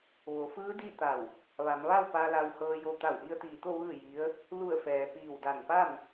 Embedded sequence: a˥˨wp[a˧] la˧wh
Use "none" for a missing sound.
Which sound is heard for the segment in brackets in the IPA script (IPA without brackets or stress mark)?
a˧